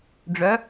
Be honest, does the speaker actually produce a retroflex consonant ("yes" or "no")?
yes